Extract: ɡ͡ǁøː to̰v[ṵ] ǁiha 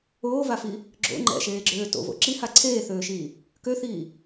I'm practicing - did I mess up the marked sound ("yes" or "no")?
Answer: yes